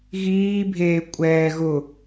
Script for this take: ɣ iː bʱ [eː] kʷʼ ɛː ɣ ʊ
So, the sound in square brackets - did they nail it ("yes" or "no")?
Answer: yes